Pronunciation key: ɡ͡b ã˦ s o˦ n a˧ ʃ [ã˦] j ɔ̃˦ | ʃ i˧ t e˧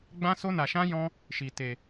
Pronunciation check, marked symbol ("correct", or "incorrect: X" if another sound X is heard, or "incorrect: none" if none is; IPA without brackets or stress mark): correct